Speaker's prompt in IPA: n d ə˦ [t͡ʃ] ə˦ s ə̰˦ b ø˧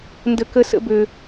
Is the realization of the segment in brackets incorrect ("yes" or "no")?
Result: yes